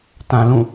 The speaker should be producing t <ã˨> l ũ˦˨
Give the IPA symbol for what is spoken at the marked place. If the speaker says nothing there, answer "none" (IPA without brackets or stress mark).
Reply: ã˨